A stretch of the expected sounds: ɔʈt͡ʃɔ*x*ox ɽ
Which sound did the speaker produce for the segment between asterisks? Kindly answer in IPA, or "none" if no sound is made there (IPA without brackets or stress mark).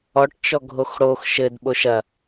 ɡʱ